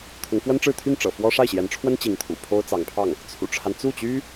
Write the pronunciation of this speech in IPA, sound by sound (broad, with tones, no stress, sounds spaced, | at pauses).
t̪ʰ ʊ˧˥ ŋ f w ə˥ n ʈ͡ʂ ɻ̩˥˧ t̪ʰ y˥˩ n ʈ͡ʂ ɤ̰˨˩ f w ɔ˥ ʂ a˥˩ ɪ̯ ɕ j ɛ˧˥ n ʈ͡ʂʰ w ə˥ n t͡ɕ i˧˥ ŋ t̪ʰ ṵ˨˩ pʰ o˥ ʊ̯ t͡s ɑ˧˥ ŋ pʰ ɑ˥˩ ŋ | t͡sʰ ṵ˨˩ ʈ͡ʂʰ a˦ n t͡s u˥˩ t͡ɕ y˥